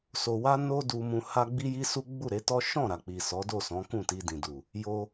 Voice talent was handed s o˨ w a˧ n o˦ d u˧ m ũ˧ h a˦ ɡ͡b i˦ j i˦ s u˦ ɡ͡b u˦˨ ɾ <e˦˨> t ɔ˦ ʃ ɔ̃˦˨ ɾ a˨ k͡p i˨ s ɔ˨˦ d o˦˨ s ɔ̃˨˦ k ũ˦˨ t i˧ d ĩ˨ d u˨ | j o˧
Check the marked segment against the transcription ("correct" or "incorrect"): incorrect